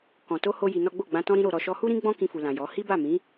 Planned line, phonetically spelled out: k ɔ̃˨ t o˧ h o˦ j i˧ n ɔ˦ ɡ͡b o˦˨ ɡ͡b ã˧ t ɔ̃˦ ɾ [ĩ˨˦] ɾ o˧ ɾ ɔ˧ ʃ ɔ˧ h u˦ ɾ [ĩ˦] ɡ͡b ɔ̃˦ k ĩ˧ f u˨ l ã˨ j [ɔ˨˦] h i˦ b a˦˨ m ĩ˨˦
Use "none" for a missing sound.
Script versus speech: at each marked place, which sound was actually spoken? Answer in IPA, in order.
ĩ˦, ĩ˦, ɔ˨˦

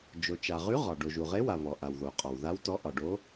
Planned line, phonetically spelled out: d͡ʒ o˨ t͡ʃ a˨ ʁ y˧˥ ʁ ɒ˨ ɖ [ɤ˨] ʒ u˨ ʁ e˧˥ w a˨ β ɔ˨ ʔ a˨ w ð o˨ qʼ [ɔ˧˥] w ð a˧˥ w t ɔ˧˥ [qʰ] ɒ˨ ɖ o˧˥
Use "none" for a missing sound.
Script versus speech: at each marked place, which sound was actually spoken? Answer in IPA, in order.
o˨, ɔ˨, ʔ

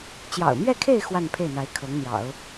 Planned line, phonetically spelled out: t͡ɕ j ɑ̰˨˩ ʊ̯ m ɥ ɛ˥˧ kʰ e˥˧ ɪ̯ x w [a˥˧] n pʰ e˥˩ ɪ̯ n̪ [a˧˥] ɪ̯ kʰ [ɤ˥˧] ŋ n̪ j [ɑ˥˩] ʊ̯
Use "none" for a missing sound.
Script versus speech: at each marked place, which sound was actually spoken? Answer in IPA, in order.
a˥˧, a˧˥, ɤ˧˥, ɑ̰˨˩˦

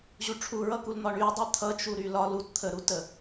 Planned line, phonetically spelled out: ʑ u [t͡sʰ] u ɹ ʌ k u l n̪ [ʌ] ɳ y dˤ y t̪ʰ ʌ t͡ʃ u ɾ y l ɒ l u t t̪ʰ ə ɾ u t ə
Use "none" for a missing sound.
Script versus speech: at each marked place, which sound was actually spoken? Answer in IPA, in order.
ʈ͡ʂʰ, ɒ

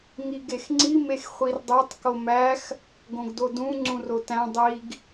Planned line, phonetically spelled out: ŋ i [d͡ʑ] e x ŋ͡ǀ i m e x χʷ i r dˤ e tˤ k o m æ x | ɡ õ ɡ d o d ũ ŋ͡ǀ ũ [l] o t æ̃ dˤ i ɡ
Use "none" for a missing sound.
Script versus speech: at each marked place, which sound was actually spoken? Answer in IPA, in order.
ɡ, r

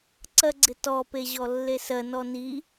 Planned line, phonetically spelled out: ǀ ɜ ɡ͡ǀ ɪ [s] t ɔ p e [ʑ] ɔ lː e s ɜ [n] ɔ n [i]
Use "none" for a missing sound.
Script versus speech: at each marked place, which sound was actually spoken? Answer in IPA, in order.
none, ʑ, n, i

